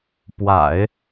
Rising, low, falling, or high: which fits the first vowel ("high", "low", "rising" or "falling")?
low